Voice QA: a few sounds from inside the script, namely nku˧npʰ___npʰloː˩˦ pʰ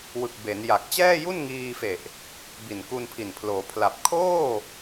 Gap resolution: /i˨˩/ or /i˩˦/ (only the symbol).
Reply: i˨˩